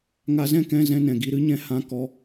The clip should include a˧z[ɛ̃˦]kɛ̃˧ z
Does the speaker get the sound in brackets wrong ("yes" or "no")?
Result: no